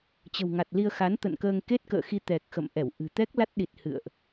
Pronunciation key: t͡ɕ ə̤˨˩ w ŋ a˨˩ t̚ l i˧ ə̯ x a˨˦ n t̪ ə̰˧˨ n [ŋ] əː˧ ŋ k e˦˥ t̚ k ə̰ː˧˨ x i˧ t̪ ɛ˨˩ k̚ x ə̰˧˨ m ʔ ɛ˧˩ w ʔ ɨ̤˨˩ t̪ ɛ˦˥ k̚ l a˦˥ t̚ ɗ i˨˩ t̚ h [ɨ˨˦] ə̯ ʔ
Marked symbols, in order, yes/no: no, no

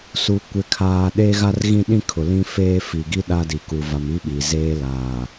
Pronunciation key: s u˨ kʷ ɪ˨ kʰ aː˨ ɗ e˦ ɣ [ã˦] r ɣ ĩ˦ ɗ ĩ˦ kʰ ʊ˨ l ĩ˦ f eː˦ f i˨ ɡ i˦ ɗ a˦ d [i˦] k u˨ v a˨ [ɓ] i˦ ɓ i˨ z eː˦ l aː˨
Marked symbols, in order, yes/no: no, no, no

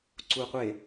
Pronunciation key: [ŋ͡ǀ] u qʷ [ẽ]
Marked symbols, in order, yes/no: no, no

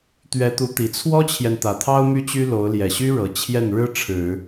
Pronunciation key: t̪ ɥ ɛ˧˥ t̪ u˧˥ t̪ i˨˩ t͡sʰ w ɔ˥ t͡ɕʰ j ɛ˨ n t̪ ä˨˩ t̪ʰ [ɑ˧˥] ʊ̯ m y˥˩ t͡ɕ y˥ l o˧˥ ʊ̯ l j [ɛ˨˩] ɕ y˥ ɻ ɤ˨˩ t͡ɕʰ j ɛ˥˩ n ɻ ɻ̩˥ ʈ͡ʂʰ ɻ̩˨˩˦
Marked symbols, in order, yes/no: no, yes

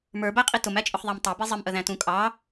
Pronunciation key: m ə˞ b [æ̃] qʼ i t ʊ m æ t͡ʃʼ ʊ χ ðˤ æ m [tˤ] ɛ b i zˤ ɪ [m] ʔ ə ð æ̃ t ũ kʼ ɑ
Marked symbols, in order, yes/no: no, yes, yes

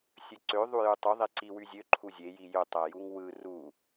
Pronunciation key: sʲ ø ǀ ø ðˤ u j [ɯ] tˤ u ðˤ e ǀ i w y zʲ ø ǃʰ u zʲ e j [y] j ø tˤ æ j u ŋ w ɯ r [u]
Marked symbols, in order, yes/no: no, no, yes

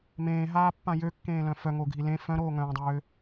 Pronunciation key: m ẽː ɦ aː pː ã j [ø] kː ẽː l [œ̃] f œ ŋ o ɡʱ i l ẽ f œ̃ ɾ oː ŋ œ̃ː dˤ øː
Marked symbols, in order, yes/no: yes, yes

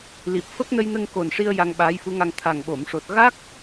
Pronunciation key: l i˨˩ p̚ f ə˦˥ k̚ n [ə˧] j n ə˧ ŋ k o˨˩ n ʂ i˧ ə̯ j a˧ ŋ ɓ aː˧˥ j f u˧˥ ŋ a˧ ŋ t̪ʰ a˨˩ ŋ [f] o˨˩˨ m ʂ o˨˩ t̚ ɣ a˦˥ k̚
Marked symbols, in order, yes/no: yes, no

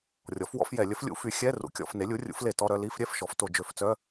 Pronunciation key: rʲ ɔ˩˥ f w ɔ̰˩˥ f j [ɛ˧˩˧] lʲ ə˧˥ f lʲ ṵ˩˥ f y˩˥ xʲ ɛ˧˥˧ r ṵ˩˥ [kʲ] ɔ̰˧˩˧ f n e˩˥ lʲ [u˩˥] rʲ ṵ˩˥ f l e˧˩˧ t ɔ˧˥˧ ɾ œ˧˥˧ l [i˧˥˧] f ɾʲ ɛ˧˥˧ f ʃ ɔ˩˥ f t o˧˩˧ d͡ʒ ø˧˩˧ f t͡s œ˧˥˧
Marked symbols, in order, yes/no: yes, yes, yes, yes

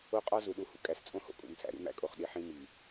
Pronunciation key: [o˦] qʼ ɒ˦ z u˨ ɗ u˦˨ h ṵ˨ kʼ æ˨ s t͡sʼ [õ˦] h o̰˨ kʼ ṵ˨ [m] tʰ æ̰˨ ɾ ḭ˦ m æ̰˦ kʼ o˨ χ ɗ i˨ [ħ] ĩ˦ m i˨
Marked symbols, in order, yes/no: yes, yes, yes, yes

